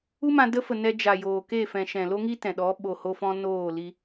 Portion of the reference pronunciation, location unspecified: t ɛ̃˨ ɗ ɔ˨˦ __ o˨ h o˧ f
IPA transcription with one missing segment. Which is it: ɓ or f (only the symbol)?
ɓ